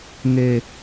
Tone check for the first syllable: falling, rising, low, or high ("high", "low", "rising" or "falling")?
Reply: low